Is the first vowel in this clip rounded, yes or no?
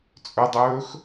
yes